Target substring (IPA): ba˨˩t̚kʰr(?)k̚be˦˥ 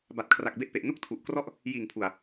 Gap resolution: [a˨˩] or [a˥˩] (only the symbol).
a˨˩